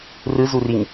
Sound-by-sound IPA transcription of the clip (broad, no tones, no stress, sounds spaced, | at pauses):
r ɯ z u r i ŋ